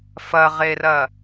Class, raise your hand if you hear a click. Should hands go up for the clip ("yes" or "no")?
no